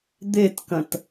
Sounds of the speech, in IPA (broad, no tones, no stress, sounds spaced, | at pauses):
d̪ e t k ɐ̃ t